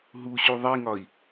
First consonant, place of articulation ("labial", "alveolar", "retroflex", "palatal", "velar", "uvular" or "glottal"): glottal